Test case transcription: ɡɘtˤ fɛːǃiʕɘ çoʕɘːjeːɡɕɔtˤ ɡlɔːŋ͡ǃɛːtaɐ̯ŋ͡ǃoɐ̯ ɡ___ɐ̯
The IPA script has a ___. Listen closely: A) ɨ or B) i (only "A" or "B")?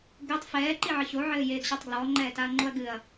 A